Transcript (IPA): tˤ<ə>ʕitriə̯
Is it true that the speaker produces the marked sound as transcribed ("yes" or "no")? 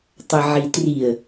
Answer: yes